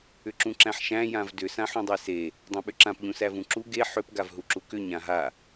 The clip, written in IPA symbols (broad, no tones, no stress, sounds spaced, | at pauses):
ʏ ǁ ũ ǁ æ̃ ħ ʃ æ̃ j ã v d ʏ s ã ħ ũ dˤ e s e | dˤ ẽ ɓ ʏ ǁ ã p ʎ ũ s æ v ũ ǁ u ɡ e ħ ʏ p ɡ a v ɦ u ǁ u k ʏ ɲ ã ɦ a